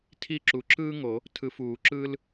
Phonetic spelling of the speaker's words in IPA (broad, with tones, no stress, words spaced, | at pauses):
tʰi˦˨ǁu˨ǁɯː˥ŋo˨˩˦ | tʰɯ˨fuː˨˩˦ǁɯː˥l